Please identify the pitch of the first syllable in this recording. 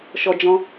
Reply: high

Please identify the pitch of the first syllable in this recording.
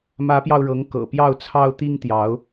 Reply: rising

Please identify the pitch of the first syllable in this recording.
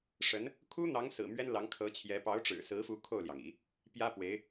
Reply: rising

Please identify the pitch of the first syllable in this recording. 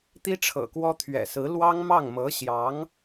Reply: high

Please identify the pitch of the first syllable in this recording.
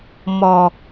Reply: low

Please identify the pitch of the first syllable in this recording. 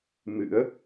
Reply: rising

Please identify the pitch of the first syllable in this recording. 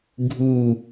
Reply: falling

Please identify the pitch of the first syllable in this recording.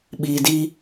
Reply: low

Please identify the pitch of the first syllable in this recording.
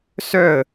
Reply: falling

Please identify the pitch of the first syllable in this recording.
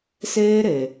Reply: high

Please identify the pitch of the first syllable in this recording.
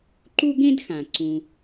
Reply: high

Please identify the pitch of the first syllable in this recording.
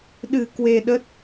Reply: low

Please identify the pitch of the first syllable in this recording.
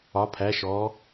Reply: rising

